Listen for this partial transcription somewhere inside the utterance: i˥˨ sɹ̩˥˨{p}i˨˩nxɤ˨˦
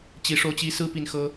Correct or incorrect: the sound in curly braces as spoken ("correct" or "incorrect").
correct